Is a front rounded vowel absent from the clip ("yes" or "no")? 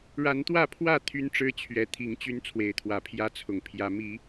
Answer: no